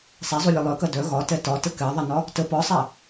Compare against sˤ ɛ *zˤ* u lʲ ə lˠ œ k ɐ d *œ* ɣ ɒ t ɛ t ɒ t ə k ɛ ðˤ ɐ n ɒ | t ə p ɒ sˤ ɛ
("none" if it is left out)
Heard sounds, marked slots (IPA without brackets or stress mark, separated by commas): zˤ, œ